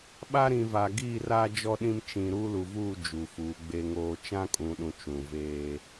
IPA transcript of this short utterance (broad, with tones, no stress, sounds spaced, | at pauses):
ɓ a˦ ɾ ĩ˨ v a˨ ɡ iː˦˨ r aː˦ d͡ʒ ɔ˦ ɗ ĩ˦ m t͡ʃ ĩ˨ ɾ uː˦ l u˨ v uː˦˨ d͡ʒ u˨ f uː˨˦ ɡ͡b e˦ ŋ oː˦ t͡ʃ ã˦ kʼ ũ˨ ɗ ũ˨ t͡ʃ ũ˨ v eː˦